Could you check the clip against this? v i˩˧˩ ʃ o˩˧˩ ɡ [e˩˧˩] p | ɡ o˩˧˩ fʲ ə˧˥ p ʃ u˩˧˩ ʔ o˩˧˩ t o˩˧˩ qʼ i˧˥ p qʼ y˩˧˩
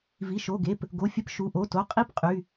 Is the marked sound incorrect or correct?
correct